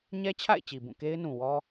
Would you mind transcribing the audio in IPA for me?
ɲɛ˦t͡ɕʰa̰˦˨ɪ̯ t͡ɕi˨bũ˦˨ke˦ɪ̯nũ˨ wɔ˦

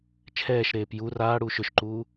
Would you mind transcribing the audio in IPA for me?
t͡ʃʰɛːʃɾeːp ju raːɽuː ʃʏʃǃuː

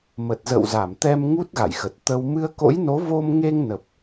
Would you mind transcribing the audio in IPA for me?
mə˨˩t̚zə̰˧˨wza˧˩mt̪ɛ˧m ŋu˦˥t̚ ɣa̰˧˨jxə˨˩t̚ t̪ə˧w mɨ˧ə̯ko̰˧˥jno˨˦vo˧m ŋe˧ŋnə˨˩p̚

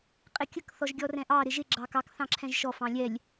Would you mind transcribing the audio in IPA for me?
qʼɪkʲək θɔʒɡʲɔrɛ̃ʔɑ ɾɪʒɪ ɡ͡ǁɑkɑk θɑ̃ǁʰɛ̃ʒʃɔ fɑ̃lʲɛlʲ

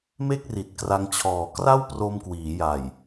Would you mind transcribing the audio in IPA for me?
me˥˩k̚ri˨˩t̚kra˧ŋt͡ɕʰɔː˨˩ kra˥˩w pro˧mkwiː˩˦ja˨˩j

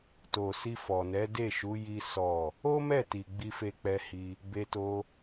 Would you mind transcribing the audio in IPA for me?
to˨si˧fɔ˨nɛ˨˦ de˦˨ʃu˨˦ ji˦sɔ˦˨ | o˦mɛ˦˨ti˨ ɡ͡bi˧fe˧k͡pɛ˧hi˧ | be˧to˧

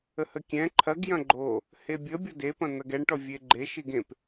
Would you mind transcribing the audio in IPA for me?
əhəkʲɛ̃ ǃʰɐɡjɐ̃ ɡ͡ǃo | hebʲə bʲɔdepɐ̃n̪ɐɡ ɛɳʈɔ vʲeɡ͡ǃeʃiɡ ẽp

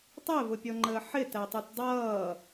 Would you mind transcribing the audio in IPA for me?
tˤɛvʊpʲɔŋ͡ǃəː ħɪtætˤut dˤʌː

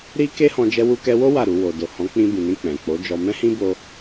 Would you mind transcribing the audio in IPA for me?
ɾi˦ ke˦hɔ̃˧ d͡ʒɛ˧wu˧kɛ˧wo˦ wa˦˨ɾu˧ wo˨do˨hɔ̃˨˦ k͡pĩ˧ bĩ˨nĩ˧ k͡pɛ̃˨k͡po˨˦d͡ʒɔ˧ mɛ̃˦hĩ˦bo˧

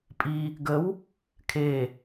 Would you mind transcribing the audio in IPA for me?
pʼi | ɡəw | kʰe

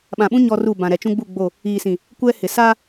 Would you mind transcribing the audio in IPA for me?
ɓã˨ɓũ˦ ɲɔ˦ru˦˨bã˨ ɾɛ˨t͡ʃũ˦ ɡ͡bu˦˨ ɡ͡bo˦˨ | iː˨sĩ˨ | kʷɛ˦hɪ˨ sa˦

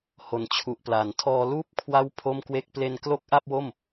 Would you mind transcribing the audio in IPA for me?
ho˨˩nt͡ɕʰu˨˩ʔpla˨˩ntʰɔː˧ luː˦˥p̚kʰwa˦˥w pʰo˥˩mkwe˥˩k̚ ple˧n klo˦˥k̚ʔa˥˩p̚wo˥˩m

